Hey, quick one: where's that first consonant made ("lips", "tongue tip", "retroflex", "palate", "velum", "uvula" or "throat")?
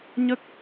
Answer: palate